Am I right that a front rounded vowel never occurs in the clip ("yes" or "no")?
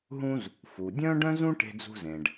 no